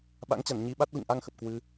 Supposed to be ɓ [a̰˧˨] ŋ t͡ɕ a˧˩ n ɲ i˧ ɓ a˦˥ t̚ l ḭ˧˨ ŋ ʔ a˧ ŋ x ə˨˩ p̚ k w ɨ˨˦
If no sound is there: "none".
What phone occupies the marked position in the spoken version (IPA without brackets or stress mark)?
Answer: a̰˧˥